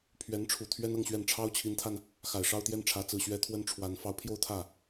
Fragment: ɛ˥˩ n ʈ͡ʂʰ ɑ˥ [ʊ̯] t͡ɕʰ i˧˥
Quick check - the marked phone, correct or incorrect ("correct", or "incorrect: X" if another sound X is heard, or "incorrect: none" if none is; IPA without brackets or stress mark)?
correct